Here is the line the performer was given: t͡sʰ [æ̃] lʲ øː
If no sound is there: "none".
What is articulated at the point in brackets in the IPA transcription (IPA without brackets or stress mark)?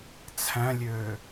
æ̃